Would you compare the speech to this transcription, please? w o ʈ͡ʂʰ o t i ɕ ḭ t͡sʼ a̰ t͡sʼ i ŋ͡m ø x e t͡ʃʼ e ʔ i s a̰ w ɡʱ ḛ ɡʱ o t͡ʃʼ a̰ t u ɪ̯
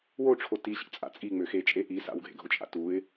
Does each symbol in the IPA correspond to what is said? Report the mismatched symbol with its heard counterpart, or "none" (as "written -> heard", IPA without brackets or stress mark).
none